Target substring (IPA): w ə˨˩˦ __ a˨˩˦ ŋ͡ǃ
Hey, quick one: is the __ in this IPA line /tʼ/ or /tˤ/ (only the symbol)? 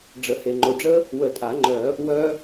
tʼ